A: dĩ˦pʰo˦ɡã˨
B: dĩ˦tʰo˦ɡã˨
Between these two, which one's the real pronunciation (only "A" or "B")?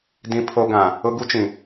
A